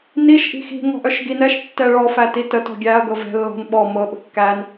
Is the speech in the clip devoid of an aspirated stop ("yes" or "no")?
yes